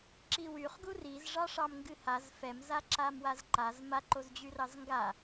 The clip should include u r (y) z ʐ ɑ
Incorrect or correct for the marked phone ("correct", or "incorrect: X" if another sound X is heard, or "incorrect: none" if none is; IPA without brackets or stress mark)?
incorrect: i